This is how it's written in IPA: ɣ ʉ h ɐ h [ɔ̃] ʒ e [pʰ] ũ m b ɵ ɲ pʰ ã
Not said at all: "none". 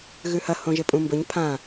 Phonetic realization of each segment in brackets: õ, pʼ

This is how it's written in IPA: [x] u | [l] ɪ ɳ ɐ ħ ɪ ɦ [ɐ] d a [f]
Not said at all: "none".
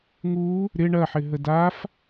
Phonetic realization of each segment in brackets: ŋ, ɾ, ə, f

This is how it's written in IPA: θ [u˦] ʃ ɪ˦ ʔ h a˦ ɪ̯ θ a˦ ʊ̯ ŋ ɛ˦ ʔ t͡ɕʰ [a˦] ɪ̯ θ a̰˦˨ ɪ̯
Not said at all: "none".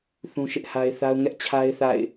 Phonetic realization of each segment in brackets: ũ˦, a˦

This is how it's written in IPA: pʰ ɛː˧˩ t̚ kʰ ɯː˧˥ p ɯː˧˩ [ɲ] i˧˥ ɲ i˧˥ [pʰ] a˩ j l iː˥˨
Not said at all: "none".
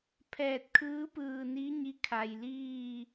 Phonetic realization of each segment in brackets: n, kʰ

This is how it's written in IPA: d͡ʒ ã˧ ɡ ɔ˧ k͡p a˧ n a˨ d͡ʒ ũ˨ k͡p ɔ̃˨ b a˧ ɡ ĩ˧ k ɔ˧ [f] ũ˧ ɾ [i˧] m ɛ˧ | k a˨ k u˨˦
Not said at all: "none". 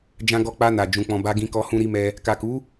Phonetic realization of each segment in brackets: h, i˧

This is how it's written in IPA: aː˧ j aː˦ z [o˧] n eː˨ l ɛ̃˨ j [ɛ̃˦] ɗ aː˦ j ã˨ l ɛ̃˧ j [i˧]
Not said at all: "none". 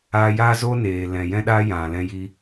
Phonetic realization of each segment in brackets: o˦, ɛ̃˦, i˧

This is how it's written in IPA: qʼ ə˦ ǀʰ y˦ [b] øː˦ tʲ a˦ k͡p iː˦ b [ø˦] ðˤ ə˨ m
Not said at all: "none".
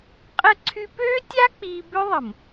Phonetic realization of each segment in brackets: p, ø˦

